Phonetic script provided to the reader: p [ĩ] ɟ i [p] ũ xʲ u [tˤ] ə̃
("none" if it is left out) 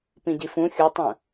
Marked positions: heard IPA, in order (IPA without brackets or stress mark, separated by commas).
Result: ĩ, f, tˤ